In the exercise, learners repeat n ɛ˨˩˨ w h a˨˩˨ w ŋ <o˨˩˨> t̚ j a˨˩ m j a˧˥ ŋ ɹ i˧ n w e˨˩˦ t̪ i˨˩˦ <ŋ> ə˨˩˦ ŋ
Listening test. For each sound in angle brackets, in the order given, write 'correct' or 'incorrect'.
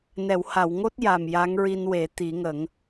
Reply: incorrect: o˦˥, correct

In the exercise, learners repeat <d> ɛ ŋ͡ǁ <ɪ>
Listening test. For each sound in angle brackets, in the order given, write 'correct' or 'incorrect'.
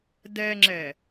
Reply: correct, incorrect: ɛ

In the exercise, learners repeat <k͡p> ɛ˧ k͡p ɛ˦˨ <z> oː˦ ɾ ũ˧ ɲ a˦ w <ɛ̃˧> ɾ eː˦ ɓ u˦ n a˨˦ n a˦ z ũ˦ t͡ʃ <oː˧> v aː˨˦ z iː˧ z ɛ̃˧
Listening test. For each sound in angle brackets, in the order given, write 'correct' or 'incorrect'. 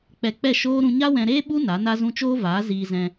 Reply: correct, incorrect: ʃ, correct, incorrect: oː˦

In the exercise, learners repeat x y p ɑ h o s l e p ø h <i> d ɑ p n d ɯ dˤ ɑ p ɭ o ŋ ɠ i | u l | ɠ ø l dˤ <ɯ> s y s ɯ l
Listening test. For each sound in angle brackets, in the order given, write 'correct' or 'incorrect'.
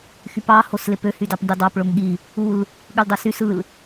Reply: incorrect: y, correct

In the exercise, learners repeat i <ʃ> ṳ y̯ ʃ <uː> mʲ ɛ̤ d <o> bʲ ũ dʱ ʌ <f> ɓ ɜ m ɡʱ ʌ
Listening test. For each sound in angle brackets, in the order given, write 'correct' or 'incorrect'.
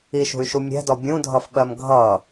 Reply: correct, incorrect: u, incorrect: ɔ, correct

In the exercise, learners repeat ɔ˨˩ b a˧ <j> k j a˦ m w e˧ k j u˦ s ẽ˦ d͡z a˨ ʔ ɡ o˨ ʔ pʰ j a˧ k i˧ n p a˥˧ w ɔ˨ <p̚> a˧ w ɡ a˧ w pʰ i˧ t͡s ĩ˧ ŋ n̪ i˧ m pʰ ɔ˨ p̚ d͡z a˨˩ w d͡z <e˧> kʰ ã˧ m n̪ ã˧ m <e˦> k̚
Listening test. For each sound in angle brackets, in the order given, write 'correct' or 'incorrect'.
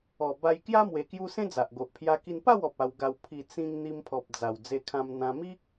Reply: correct, correct, correct, incorrect: i˦

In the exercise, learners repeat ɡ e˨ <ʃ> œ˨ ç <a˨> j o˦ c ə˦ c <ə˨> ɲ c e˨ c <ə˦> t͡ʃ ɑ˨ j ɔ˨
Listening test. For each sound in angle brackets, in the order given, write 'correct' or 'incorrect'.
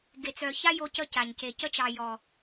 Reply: incorrect: t͡s, incorrect: a˦, incorrect: a˨, correct

